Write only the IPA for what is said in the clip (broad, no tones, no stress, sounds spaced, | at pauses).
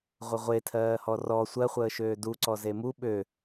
ʁʷ ə ʁʷ e tʰ ɜː h ɔ r ɔ sʷ ɜ χʷ əː ʃ øː d u ǀ ɔ z e m u ɓ ø